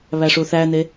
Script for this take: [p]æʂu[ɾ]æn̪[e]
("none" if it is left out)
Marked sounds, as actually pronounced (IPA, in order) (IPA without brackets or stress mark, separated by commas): β, θ, e